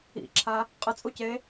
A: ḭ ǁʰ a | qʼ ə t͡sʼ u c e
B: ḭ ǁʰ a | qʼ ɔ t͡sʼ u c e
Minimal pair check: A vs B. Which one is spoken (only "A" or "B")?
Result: A